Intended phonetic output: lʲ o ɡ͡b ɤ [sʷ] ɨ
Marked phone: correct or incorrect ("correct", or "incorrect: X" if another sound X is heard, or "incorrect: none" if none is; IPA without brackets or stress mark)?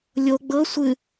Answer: correct